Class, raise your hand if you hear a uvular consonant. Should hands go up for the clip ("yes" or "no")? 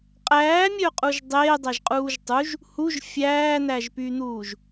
yes